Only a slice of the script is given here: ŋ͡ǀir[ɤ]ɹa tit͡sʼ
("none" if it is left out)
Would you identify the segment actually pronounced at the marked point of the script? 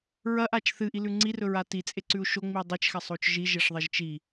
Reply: ɵ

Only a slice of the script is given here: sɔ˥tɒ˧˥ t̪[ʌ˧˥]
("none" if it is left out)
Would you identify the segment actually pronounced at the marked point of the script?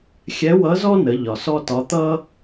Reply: ʌ˥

